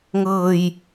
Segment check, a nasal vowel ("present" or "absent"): absent